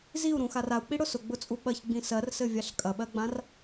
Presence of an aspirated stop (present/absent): absent